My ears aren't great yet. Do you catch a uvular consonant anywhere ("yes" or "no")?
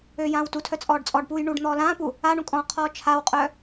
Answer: yes